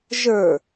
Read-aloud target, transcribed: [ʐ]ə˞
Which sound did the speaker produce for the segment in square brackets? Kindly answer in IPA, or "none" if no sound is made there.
ʒ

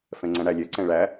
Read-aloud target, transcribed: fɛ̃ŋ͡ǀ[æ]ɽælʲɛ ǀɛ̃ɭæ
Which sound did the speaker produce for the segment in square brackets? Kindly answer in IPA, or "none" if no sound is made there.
æ̃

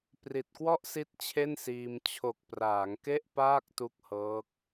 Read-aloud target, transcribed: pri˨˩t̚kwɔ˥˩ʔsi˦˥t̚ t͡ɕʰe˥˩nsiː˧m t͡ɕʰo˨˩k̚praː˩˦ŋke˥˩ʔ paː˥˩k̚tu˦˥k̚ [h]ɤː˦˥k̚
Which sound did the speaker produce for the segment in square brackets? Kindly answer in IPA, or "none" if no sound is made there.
h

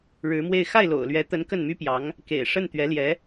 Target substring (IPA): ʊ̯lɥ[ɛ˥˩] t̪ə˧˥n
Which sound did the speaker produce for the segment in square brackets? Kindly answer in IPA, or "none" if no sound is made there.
ɛ˧˥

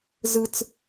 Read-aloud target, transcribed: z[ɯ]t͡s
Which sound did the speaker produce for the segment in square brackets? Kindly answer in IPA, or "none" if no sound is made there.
ɯ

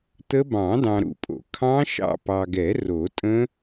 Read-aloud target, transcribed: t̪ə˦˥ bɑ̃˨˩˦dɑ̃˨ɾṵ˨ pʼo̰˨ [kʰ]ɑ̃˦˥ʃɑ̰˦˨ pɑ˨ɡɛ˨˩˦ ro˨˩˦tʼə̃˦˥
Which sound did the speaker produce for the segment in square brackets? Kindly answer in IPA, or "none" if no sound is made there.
kʰ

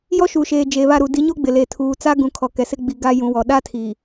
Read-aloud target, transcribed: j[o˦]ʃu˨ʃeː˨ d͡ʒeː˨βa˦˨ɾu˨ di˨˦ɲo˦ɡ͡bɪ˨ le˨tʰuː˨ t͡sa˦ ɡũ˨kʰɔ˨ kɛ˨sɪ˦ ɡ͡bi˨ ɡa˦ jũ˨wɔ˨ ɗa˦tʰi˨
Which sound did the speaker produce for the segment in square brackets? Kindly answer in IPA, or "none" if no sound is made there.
ɔ˦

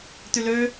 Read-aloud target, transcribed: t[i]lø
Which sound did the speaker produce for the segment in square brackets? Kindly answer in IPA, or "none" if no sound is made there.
y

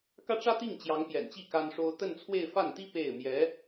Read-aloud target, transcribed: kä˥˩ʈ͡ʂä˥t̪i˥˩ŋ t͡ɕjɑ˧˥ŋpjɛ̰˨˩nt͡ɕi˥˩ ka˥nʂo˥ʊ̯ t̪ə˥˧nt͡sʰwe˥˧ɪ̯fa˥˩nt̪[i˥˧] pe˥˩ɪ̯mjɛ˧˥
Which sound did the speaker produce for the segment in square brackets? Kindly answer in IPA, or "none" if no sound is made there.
i˥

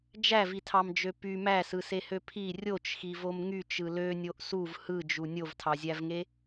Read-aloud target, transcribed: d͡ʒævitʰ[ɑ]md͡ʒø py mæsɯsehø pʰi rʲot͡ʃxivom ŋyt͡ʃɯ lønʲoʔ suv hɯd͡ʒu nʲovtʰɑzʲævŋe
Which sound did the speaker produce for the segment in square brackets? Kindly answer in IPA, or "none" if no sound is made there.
ɑ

